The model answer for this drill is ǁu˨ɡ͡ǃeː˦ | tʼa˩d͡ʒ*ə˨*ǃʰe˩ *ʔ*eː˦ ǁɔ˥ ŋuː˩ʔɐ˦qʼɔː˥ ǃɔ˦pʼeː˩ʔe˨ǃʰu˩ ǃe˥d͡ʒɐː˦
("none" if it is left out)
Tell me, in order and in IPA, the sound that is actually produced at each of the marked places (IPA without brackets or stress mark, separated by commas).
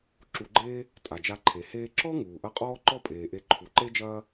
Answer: a˨, h